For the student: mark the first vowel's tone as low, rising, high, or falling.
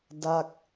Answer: falling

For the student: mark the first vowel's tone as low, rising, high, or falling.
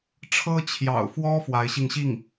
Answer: high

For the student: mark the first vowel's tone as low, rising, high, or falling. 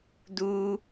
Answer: high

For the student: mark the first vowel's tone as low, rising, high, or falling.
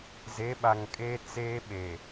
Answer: rising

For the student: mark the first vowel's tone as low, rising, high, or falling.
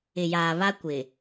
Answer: low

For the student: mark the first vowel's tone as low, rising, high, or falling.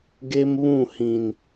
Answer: high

